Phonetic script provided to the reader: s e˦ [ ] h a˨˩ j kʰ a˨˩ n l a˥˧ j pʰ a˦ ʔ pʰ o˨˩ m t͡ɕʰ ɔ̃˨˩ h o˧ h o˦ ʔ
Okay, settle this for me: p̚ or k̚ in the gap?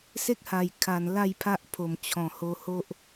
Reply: k̚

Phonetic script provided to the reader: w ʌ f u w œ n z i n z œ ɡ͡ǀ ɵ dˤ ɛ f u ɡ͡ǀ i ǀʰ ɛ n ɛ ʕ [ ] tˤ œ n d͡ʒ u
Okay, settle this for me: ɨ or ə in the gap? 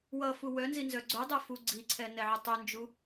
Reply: ə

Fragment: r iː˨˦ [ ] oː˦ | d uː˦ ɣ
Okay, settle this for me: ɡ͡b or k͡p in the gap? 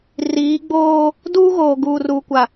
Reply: ɡ͡b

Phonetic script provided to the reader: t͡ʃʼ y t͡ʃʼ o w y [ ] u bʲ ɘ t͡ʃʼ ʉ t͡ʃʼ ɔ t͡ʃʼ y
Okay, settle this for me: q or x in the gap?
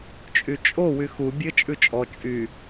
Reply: x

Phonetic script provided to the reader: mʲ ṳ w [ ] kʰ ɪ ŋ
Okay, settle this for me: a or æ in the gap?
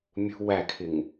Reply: æ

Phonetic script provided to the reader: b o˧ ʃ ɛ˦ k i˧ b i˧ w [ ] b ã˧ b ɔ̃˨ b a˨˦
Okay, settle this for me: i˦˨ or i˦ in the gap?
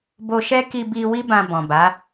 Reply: i˦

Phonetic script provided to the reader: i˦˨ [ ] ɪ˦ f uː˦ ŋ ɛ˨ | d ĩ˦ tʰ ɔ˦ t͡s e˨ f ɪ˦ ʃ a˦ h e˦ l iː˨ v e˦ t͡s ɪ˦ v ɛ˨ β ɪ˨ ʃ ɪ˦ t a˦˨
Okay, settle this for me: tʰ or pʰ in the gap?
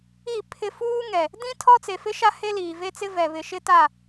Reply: pʰ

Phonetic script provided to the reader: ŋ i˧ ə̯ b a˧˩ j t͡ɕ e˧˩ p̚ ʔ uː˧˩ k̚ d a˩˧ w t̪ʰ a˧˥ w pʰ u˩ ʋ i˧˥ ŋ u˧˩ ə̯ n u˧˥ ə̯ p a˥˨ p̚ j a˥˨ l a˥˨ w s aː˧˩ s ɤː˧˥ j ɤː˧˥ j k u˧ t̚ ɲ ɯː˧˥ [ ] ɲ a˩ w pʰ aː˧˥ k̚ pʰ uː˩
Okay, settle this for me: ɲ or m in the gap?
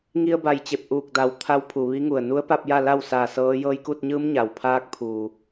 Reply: m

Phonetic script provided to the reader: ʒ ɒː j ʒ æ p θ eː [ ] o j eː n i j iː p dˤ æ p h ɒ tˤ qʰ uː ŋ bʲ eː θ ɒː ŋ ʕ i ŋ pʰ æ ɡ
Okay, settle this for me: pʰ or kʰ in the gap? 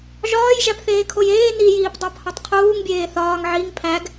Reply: kʰ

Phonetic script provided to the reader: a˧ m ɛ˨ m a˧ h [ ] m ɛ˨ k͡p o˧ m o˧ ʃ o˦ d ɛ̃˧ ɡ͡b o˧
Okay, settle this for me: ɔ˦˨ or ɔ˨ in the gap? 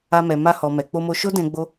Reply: ɔ˨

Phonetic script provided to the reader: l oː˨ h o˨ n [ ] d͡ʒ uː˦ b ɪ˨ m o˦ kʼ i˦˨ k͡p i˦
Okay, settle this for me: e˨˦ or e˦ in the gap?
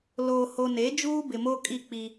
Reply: e˨˦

